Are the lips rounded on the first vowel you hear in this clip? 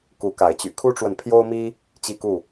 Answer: yes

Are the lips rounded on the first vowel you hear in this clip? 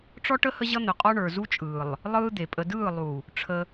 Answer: yes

